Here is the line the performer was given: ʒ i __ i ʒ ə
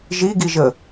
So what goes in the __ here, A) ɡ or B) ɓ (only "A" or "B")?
A